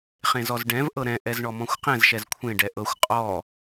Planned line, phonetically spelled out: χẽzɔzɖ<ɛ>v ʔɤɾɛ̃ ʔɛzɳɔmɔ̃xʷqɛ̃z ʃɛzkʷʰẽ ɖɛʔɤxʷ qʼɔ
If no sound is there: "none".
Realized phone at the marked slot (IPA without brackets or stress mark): ɛ̃